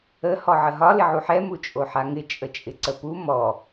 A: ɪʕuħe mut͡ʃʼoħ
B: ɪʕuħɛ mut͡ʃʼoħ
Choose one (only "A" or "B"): B